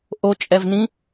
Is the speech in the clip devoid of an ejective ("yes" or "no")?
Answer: no